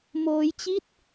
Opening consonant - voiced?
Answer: yes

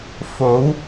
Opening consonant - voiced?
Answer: no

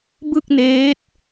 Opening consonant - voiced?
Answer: yes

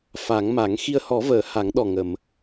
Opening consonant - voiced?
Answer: no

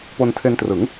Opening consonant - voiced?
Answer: no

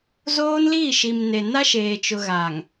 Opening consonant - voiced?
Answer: yes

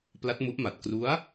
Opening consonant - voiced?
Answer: no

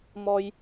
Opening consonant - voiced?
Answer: yes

